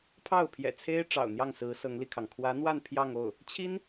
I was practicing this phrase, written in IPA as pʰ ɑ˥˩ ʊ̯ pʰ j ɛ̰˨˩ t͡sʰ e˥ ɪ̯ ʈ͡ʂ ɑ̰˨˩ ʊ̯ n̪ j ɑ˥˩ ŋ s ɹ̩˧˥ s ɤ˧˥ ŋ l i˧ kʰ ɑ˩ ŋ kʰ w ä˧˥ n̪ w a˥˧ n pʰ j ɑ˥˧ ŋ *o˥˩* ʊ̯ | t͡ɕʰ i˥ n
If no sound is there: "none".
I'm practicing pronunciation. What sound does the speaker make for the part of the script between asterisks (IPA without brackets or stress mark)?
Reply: o˥˩